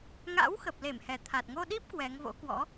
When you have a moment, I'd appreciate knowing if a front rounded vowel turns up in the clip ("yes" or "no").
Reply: no